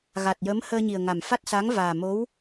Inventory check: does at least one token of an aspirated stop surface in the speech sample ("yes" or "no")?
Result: no